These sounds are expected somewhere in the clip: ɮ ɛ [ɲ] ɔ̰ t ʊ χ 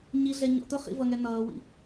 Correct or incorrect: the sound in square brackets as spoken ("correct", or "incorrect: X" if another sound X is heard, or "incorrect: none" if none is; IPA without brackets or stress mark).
correct